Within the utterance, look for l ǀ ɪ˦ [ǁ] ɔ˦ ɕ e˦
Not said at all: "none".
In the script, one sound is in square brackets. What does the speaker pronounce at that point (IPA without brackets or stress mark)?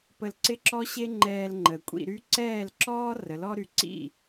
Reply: ǁ